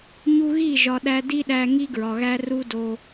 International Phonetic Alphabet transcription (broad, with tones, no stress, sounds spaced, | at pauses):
ɲ u˧ ɣ i˦˨ ʒ ɒ˨ ɗ æ˧ d i˦ ɗ æ˧ ŋ i˦ ɡ ɹ ɒ˨ ɣ æ˦ r u˦ d o˧